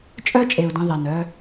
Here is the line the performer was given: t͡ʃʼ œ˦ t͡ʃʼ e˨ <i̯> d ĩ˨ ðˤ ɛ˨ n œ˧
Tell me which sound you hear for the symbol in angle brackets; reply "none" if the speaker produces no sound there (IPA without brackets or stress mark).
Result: u̯